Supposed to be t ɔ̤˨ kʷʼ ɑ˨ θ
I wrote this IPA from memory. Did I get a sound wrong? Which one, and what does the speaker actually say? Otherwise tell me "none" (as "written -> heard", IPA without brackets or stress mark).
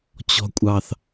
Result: t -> t͡ɕ